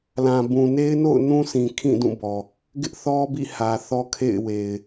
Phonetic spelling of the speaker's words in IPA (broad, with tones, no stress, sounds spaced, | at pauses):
l ã˨ b ũ˨ n e˦ ɪ̯ n o̰˦˨ ʊ̯ n ũ˦ s ĩ˨ kʰ ĩ˦˨ d ũ˦˨ b ɔ˨ | ɡ ɪ˦ ʔ θ ɔ˦ b ḭ˦˨ h ä˨ θ ɔ˦ kʰ ḛ˦˨ ɪ̯ w e˨ ɪ̯